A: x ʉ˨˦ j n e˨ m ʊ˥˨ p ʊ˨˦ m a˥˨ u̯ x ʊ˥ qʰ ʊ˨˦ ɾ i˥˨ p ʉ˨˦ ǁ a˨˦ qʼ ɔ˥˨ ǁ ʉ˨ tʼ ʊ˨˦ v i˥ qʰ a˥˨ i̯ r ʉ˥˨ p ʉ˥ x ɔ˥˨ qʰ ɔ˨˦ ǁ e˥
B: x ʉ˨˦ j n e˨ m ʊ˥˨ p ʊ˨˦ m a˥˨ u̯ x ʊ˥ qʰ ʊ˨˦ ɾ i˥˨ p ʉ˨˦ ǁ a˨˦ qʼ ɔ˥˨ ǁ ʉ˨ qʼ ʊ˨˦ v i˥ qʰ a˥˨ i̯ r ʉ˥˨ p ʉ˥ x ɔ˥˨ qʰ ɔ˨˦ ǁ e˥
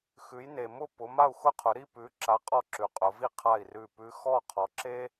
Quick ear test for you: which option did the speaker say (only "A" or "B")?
B